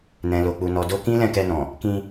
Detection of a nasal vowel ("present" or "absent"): present